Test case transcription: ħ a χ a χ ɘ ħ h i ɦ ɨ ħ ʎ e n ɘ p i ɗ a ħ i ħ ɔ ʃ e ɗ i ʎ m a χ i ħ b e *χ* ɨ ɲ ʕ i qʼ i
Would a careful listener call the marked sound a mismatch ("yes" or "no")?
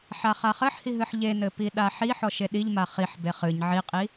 no